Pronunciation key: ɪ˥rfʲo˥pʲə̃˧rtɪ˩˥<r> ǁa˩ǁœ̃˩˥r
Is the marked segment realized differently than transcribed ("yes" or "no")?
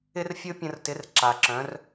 no